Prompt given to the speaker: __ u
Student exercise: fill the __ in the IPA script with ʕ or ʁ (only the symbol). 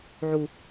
ʕ